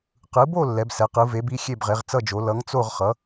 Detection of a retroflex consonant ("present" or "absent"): absent